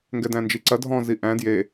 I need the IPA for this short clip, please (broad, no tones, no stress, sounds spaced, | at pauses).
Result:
ŋ ɡ ɛ d æ̃ n d͡ʒ i ǀ ɐ dʱ ɔ̃ z i ʔ æ̃ d j e